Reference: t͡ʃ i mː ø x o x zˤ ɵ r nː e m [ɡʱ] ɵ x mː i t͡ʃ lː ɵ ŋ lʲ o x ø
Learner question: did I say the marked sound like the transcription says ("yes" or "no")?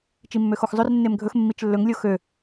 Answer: yes